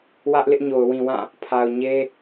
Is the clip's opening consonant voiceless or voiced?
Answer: voiced